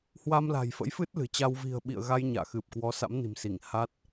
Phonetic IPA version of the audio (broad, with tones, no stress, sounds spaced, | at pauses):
h w a˧ m l a̤˨˩ j f ə̰˧˥ j f ɨ˦˥ t̚ l ɨ̤˨˩ t͡ɕ a˧ w v i̤˨˩ ə̯ ɓ ḭ˧˨ ə̯ ɣ a˧ j ɲ a̰ː˧˨ x ɨ˨˩ p̚ k w ɔ˨˦ s a̰˧˥ m n i̤˨˩ m s i˧˩ ŋ h a˦˥ t̚